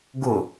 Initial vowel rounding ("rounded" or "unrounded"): rounded